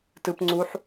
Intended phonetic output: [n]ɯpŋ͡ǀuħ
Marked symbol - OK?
no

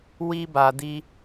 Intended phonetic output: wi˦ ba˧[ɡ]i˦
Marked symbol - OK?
no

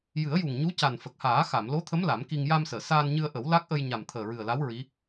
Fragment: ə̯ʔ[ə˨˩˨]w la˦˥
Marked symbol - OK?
no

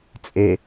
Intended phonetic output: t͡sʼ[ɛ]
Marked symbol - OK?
no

